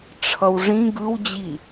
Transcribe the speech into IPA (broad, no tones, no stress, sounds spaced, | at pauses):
ʈ͡ʂʰ ʌ w ʐ ĩ ɡ ɯ w d͡ʑ i